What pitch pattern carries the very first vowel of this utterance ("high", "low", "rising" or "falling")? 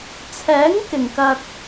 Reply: rising